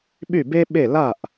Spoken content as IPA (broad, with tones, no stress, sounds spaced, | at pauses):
ɓ y˥˨ b e˥ ɓ e˥˨ l a˥˨ ʔ